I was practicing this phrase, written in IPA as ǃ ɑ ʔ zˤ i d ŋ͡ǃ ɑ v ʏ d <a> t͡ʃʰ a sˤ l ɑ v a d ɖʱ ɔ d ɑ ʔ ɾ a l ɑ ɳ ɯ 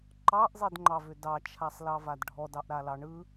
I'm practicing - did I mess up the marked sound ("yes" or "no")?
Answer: yes